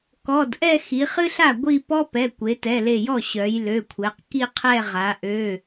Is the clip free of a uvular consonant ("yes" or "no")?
no